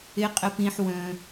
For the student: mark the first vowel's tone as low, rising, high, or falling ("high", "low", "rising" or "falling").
low